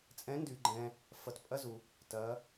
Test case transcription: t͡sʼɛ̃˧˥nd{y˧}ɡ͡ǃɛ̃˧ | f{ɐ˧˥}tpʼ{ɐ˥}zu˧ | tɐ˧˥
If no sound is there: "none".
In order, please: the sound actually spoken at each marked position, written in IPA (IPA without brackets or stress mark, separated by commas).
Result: y˧, ɐ˧˥, ɐ˥